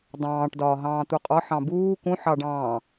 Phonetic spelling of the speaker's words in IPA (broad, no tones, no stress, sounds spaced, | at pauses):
dˤ ɑ̃ː ʈ d ɒː ɦ ɑ̃ː t̪ u qʼ ɒ ħ ɑ̃ b uː k ũ ħ ɑ ɖ ɑ̃ː